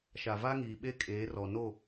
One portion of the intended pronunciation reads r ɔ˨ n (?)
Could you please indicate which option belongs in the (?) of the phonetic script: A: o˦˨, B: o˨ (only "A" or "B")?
A